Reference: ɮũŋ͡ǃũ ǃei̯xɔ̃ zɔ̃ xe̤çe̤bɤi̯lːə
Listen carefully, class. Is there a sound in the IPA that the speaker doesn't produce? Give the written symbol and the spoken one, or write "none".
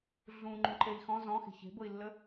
none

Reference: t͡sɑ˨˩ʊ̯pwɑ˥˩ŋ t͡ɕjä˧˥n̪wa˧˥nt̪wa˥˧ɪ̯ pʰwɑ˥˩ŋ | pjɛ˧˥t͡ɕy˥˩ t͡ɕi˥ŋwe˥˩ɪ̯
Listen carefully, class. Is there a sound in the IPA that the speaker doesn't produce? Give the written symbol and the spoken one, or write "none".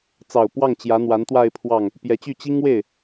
none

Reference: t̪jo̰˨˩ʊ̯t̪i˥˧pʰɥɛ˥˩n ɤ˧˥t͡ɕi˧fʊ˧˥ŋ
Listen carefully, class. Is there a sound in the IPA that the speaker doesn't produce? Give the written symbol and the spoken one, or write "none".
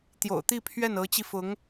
none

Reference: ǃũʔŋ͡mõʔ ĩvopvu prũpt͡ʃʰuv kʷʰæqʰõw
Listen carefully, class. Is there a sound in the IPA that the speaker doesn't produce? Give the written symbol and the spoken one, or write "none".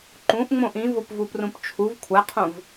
w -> v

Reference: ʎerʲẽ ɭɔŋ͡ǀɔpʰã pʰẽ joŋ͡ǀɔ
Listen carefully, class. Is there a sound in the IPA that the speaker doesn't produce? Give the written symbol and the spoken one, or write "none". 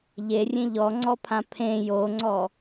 ɭ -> ʎ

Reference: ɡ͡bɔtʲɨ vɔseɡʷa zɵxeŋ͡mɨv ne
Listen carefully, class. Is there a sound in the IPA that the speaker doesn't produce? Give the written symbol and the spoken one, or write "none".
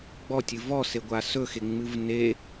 z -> s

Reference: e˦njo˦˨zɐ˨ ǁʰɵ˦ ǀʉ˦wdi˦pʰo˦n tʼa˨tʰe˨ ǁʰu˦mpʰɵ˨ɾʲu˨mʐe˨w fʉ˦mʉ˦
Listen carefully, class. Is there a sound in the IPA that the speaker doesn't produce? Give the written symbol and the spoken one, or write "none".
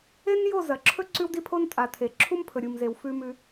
ʐ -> z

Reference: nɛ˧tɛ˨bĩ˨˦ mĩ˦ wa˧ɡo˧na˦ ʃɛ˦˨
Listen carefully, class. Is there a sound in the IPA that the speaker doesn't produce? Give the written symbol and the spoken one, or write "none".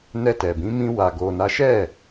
none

